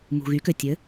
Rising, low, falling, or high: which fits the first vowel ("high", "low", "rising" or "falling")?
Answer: low